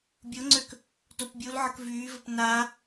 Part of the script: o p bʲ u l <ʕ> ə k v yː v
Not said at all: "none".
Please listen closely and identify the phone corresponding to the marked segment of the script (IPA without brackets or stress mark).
ʕ